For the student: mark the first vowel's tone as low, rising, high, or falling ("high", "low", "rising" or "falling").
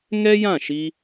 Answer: high